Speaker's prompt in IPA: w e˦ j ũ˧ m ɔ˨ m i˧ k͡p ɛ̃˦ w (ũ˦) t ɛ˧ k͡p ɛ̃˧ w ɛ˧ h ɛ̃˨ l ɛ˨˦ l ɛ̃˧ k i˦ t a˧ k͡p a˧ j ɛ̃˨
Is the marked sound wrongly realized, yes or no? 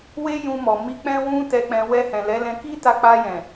no